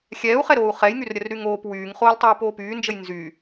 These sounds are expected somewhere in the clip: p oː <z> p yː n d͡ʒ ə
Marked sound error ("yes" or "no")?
yes